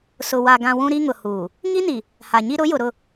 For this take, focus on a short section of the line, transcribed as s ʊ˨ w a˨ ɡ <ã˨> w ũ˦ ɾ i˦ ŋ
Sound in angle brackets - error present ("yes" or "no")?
no